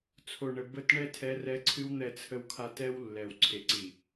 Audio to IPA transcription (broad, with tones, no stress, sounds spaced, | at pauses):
t͡sʰ o˨ ɳ ə˨ b ə˦˨ t ɳ ɛ˦ tʰ ɛ˦ r ɛ˦ ǀʰ ɨ˦ w n̪ ɛ˨ t͡sʰ ə˨ w kʰ a˨ t ɛ˦ w lː ɛ˨ w ǀʰ e˨ ǀ i˨